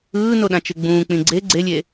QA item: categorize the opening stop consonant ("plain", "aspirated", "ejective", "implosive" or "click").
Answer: implosive